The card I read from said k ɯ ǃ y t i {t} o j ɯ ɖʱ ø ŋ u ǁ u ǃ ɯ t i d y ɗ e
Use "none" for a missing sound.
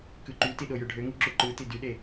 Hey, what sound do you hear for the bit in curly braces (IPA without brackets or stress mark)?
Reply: ɗ